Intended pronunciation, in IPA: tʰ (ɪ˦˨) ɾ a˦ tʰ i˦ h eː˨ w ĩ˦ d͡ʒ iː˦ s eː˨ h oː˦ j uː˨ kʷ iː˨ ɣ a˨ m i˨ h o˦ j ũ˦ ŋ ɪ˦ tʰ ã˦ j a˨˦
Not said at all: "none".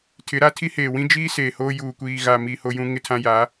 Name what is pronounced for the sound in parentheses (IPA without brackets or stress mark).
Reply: ɪ˨˦